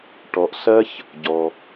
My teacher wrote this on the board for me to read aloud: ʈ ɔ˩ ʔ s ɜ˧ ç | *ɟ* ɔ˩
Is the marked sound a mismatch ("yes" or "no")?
no